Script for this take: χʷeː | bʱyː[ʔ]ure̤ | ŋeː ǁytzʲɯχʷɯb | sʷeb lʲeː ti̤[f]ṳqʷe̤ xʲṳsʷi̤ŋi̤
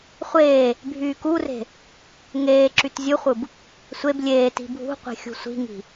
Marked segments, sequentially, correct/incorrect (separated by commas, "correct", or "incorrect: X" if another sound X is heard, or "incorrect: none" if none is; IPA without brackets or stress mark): incorrect: k, incorrect: bʱ